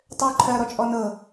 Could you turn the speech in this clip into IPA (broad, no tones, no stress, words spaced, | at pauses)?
tˤø ǃʰɜ ɾɔt͡ʃʼɔnɤ